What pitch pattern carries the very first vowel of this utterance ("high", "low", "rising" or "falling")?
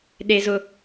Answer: high